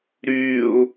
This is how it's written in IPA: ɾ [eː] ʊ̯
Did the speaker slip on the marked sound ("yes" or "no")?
yes